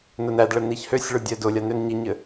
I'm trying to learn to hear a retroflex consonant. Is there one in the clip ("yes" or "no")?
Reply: yes